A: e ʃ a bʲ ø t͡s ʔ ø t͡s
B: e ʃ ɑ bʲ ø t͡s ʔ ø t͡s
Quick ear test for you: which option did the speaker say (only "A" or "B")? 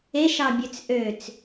B